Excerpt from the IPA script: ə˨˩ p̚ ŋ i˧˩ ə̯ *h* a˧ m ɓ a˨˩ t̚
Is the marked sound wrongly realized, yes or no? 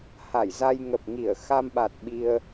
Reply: yes